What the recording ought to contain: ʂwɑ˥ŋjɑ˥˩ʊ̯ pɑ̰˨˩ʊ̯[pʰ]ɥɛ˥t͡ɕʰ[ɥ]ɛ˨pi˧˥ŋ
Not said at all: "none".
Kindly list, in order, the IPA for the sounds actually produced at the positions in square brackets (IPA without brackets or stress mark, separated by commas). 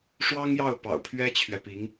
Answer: pʰ, ɥ